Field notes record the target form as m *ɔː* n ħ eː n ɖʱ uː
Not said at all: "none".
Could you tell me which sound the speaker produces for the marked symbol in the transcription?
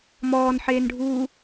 ɔː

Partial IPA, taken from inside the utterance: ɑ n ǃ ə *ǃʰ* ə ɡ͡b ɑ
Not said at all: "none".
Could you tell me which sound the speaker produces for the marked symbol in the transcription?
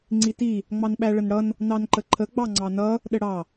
ǃʰ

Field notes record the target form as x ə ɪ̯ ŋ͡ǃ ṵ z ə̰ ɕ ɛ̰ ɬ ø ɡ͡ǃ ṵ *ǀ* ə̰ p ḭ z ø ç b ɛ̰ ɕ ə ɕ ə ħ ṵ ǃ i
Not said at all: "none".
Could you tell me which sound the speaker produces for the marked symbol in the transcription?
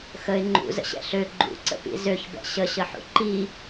ǀ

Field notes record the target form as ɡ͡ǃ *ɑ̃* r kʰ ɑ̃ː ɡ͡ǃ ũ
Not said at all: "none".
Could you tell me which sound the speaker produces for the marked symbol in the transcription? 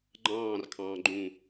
ɑ̃ː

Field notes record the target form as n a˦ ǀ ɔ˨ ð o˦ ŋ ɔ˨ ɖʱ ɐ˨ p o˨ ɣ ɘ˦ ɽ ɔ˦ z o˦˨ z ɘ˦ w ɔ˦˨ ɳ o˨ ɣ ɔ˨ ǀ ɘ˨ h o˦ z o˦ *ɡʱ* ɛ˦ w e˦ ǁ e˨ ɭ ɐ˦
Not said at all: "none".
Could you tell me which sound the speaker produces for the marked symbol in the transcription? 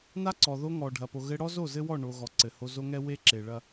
ŋ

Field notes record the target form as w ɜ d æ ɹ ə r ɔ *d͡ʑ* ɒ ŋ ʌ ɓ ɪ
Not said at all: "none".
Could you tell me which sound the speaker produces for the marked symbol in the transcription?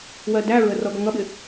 ɡ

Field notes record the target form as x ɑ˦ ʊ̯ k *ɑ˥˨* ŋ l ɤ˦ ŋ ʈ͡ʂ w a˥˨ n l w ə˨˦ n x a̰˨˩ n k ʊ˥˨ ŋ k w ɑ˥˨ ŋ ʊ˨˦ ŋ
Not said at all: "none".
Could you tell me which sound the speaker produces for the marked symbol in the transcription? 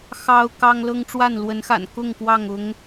ɑ˦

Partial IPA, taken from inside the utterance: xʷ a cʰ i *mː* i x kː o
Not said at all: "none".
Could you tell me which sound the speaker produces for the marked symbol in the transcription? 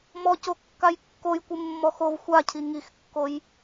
ŋ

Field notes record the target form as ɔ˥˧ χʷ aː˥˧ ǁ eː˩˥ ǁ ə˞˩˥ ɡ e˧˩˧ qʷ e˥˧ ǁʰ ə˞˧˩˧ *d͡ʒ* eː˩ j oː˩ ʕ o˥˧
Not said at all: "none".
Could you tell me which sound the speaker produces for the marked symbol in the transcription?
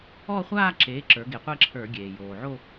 ɡʲ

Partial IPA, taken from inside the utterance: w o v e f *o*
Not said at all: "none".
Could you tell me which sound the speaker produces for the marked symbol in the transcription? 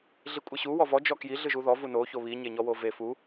u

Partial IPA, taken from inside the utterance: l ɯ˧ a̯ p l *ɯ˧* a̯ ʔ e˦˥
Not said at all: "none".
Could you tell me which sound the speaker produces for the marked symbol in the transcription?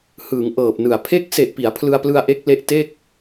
ɯ˧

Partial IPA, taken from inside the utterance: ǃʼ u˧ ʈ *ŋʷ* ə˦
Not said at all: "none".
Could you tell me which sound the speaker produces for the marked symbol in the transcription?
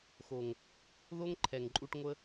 ŋʷ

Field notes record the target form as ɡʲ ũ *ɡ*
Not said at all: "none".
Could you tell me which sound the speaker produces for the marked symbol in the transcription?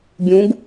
ɡ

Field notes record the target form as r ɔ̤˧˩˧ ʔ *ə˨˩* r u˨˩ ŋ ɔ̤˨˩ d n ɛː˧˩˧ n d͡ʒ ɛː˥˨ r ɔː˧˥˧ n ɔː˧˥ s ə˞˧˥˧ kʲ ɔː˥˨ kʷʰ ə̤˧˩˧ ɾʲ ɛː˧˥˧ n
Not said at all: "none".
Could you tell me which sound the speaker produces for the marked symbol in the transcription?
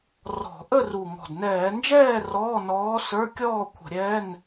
ə˥˨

